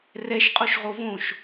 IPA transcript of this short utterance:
r ɛ ʃ qʼ o ʃ ʁ o v õ ʃ

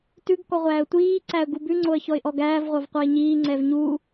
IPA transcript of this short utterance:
t ʉ ɡ k ɔ ʁʷ æː ə̯ tʷ iː ǀ æ ə̯ ɡ u b ʉ ŋ͡ǀ o ə̯ ç ɔ ɪ̯ ʔ ɔ ɡ æː v ʁʷ ɑ v qʷ ɑ ɪ̯ ɲ iː ŋ͡ǀ ɛ v ɲ u

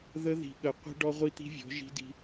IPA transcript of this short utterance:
ð ə˦ ð i̤˨ ɠ ə˨ qʷ i̤˦ ɖ ɔ˦ ʁʷ i˦ t̪ i̤˦ vʲ ɔ̤˨˦ ʒ i̤˦ d i̤˦

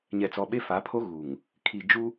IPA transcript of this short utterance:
ɲ ɛ˨ t͡s ɔ˨ ɓ e˦ f a˨˦ pʰ o˦ ɣ u˨ ŋ | kʰ i˨ d͡ʒ u˦

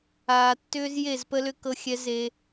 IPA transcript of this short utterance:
aː˨ tː ʏː˦ z j e˦˨ z p ə˦ l ʏ˦ k ɤ˦ xʲ ɛ˦ z e˦

